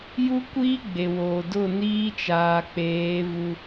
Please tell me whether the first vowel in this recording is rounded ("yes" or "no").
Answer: yes